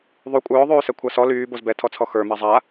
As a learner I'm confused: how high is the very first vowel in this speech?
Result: high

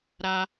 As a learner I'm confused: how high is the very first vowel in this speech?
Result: low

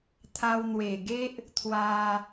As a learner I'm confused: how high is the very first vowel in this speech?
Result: low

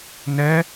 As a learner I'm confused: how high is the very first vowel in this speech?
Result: mid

